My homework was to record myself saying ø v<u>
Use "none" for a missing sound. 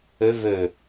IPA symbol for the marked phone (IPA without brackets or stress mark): ø